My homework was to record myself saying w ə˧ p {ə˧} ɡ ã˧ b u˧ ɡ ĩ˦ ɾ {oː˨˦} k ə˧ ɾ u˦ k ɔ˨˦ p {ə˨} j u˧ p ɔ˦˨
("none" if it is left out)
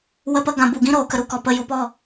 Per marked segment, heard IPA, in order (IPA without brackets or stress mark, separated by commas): ə˧, oː˨˦, ə˧